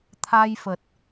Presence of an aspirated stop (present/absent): present